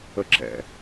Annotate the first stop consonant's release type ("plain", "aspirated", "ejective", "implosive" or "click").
click